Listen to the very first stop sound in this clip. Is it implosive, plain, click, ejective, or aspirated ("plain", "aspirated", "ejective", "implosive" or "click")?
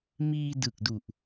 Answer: plain